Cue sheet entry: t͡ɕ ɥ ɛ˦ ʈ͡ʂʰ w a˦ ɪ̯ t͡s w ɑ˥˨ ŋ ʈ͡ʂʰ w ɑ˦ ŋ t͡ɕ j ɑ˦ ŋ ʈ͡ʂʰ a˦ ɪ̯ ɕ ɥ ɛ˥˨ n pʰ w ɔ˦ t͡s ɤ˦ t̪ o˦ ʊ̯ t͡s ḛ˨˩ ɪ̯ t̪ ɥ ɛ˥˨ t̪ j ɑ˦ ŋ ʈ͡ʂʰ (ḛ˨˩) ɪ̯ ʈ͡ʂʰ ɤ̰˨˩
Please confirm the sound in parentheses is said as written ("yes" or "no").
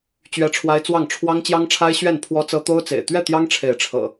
no